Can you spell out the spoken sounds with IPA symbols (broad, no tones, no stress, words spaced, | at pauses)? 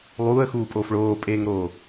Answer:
lˠuːə̯xuːpʼoːf ɭoːpʼeːŋɾoː